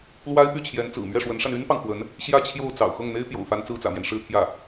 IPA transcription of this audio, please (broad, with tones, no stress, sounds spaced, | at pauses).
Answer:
l w a˥ ɪ̯ p y˥˩ t͡ɕʰ j ɛ˧˥ n t͡s ɹ̩˨˩ m ɥ ɛ˥˩ ʂ w ə˧˥ n ʂ a˧ n y˥ n p ɑ˨ ŋ x w ə˧˥ n | ɕ j ä˥˧ t͡ɕʰ j o˥˩ ʊ̯ t͡s ɑ̰˨˩ ʊ̯ x ɤ˥˩ ŋ n̪ e˥ ɪ̯ p j o̰˨˩ ʊ̯ f a˧˥ n t͡s ɹ̩˥ t͡s ä̰˨˩ m j ɛ˦ n ʂ ɻ̩˥˧ t̪ʰ j ä˥˩